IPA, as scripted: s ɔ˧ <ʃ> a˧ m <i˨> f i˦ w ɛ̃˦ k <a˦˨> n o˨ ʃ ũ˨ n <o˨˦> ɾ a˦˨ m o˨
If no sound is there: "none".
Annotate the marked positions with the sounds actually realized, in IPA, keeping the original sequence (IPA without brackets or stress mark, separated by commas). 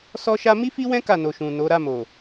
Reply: ʃ, i˦, a˦˨, o˨˦